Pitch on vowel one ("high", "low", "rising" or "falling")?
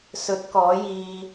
rising